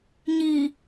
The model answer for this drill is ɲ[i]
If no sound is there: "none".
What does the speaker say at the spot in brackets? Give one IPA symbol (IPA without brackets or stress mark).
i